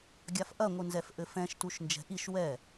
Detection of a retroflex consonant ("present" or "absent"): absent